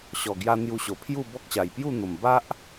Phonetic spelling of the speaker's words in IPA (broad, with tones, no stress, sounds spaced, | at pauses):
ɕ ɔ˨˩ ɡ j a˧ n̪ j u˧ ɕ o˨˩ pʰ j u˥˧ b ɔ˦ k̚ ɕ a˨˩ j p j u˥˧ n̪ o˨˩ m b a˦ ʔ